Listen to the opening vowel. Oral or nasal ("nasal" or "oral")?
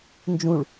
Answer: nasal